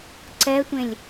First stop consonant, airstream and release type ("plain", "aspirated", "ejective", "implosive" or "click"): click